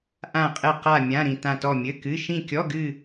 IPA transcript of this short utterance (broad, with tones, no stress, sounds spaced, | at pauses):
ʔ ã˦˨ qʼ ɘ˦˨ q a˦˨ mʲ ã˧˥˧ ɾ ĩ˦˨ t ã˦˨ t ɔ˦˨ mʲ ɘ˧˥˧ k ɨ˧˥˧ ʃ ĩ˦˨ kʲ ɔ˧˥˧ ɡ ɨ˦˨